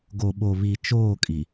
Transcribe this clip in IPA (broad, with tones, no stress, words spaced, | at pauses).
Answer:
ɡo˨ɓo˨βi˨ t͡ʃoː˦˨kʼi˨